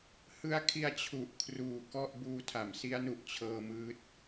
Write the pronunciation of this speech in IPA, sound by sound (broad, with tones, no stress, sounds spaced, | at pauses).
h ɯ˦˥ a̯ kʰ i˧ a̯ t͡ɕʰ u˨˩ ʔ kʰ r uː˨˩ k ɔ˥˩ ʔ b uː˧ tʰ a˩˦ m s i˦˥ a̯ n u˨˩ ʔ t͡ɕʰ ɤː˧ m ɯː˦˥ t̚